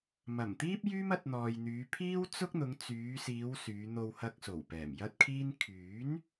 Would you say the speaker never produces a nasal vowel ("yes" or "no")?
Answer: yes